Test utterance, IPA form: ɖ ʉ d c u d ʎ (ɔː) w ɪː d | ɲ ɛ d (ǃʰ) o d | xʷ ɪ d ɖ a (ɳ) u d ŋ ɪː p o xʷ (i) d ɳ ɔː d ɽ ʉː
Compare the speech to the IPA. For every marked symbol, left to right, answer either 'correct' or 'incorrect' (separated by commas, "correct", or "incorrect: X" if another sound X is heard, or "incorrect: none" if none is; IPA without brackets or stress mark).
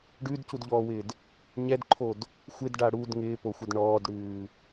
correct, correct, incorrect: ɽ, incorrect: ɪ